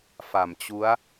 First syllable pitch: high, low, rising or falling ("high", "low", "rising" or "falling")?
low